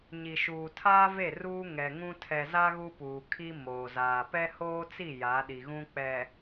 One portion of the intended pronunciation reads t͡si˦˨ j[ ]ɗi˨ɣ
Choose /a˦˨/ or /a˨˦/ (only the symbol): a˨˦